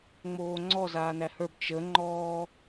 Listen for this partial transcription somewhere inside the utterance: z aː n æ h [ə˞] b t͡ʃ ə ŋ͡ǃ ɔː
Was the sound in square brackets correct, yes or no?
yes